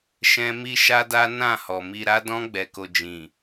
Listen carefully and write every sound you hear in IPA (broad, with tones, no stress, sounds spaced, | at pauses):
ʃ ɛ̃˦ m i˦ ʃ a˦ d a˦ n ã˦˨ h ɔ˨ m i˧ ɾ a˦ d ɔ̃˦ ɡ͡b ɛ˧ k o˧ d͡ʒ ĩ˨